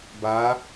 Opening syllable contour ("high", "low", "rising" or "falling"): rising